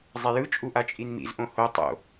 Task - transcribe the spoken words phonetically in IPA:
zˤ e j ɯ t͡ʃʼ u ʔ a t͡ʃʼ i n m ḭ z ʔ õ h o tˤ o̰

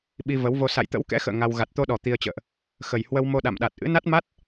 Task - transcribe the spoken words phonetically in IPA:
ɓ i˧ v ə˨˦ w v o˧ s a̰˧˨ j t̪ ə̰˧˥ w k ɛ̰˧˥ x ə̰ː˧˨ ŋ a˧ w ɣ a˨˩ t̚ t̪ o˧ ɗ ɔ˨˩ t̪ i˧ ə̯ t͡ɕ ə̰ː˧˨ ʔ | x ə˨˩ j h w ə˧ w m o˧ ɗ a̰˧˨ m ɗ a˨˩ t̚ ʔ ɨ̰˧˥ n a˦˥ t̚ m a˦˥ t̚

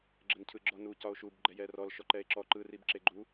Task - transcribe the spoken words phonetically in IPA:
ɡ͡ǁ ə n cʰ ɯ ɡ͡ǁ ɔ n u c ɒ o̯ ʃ u b ɡ͡ǃ ɛ j ɛ r ɔ l ʃ ɔ ǃ ɛ e̯ ǁ ɔ ǃ ɯ r i b ǁ e ɡ͡ǃ u

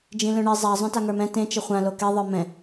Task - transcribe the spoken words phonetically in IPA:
d͡ʒ ĩ l œ̃ ɳ i zˤ a zˤ œ̃ t a ŋ ə˞ m ɛ̃ t ẽ t͡ʃ ə χʷ ã l o k e ðˤ ə˞ m ɛ̃

